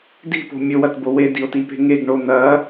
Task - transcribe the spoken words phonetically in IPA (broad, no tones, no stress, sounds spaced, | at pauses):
d i̤ p o̤ mʲ ɵ w ɐ t b o w e d i o̯ t i p e̤ ŋ e ɡ ɳ o n̪ ɐ